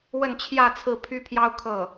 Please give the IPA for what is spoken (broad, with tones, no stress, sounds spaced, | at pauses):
w ə˥˧ n t͡ɕʰ j ä˥˧ t͡sʰ ɹ̩˥˩ pʰ y˥ pʰ j ɑ˥ ʊ̯ kʰ ɤ˥˩